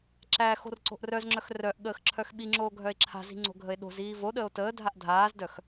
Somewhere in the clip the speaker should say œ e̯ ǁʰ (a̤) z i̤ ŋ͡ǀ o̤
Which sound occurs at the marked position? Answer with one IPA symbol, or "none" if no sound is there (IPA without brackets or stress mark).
a̤